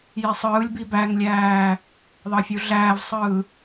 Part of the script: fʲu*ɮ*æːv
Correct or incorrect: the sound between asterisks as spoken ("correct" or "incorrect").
correct